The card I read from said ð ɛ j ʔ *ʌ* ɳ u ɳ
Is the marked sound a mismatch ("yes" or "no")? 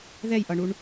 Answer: no